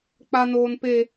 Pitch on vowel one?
high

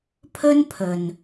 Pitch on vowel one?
high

